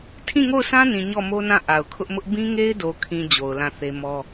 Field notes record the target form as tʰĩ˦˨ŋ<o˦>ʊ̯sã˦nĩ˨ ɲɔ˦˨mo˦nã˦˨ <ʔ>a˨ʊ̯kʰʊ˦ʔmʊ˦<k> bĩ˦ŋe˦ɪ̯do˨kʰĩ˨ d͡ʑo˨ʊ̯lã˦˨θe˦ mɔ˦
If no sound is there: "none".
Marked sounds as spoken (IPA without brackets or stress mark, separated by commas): o˦˨, ʔ, ʔ